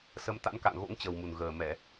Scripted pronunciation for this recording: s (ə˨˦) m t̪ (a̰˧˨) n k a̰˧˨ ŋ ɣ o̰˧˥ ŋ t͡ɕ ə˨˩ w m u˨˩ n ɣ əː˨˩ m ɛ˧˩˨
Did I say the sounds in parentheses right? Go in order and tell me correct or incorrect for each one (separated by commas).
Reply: correct, incorrect